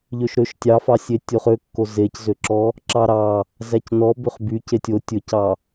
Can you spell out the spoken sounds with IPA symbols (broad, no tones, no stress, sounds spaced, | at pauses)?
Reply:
ʎ ø ʃ ɾ ø ʃ tʲ ɑ f ɑ sʲ e tʲ o χ ø kː o z e c z ø ǁ ɔ | ǁ ɑ ɾ ɑ | z æ c n ɔ b ø χ b y c e tʲ o tʲ ɵ c ɑ